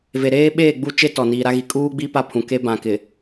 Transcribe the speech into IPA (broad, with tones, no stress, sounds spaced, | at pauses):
v e˨ ɾ eː˦ ɓ eː˦˨ ɡ͡b u˦˨ t͡ʃ e˦ t ɔ˨ n iː˨ ɾ a˦ ɣ i˨ kʼ uː˦ ɡ͡b i˦ p a˦˨ pʰ ũ˨ k e˦ b ã˨ k ɪ˨